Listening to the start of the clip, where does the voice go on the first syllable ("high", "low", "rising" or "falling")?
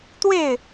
falling